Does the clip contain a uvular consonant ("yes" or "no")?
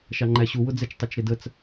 no